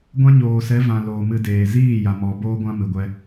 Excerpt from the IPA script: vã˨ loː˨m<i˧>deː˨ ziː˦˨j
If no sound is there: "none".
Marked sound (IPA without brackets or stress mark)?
ɨ˧